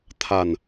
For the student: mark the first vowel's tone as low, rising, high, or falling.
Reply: low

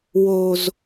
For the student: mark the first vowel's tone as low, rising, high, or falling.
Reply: low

